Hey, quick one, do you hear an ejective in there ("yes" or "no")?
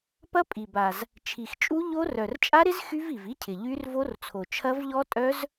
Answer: yes